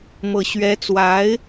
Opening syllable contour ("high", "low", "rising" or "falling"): low